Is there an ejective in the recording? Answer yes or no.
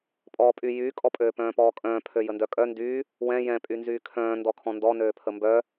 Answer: yes